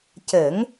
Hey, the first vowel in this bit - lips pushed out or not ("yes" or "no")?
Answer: no